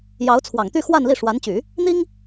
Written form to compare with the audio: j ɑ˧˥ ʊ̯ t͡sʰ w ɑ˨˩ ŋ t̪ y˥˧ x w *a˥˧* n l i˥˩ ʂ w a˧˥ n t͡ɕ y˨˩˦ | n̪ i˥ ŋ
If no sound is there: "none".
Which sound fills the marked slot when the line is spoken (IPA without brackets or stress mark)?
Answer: a˥˧